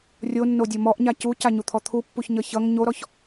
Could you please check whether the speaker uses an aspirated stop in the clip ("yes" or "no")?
yes